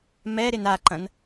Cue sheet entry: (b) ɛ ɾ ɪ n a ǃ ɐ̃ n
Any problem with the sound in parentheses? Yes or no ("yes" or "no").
yes